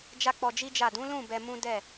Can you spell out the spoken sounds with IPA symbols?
d͡ʒa˦k͡pɔ˧d͡ʒi˦d͡ʒa˦˨ dũ˨˦lũ˦˨ bɛ˧mũ˦ dɛ˦˨

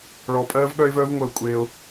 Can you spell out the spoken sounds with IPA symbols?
ɭɔ˧pʼɜː˦vɠœ˦ɪ̯ vœː˦vŋʷəː˧kʷʼeː˧ʊ̯

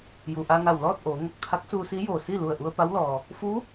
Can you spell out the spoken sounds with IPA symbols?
ju˩ʔa˧ŋa˧˩w lɔː˥˨t̚ʔoː˩˧ŋo˧˩k̚ t̪ʰa˧˥k̚suː˧si˧˥ joː˧˩si˥˨ lu˧˩ə̯ʔu˧ə̯pa˧˥wlɔː˩ | fu˧˥

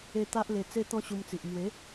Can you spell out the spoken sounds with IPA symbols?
e˦ t̪a˦ʔle˧ t͡se˦t̪ɔ̃˦ɕu˧mt͡si˨ʔ mwe˨˦

